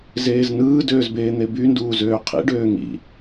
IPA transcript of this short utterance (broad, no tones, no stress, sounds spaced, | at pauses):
z eː z n ɯː d øː z b eː n̪ e b y n d uː z øː qʰ ḭ ɖ øː ŋ ḭ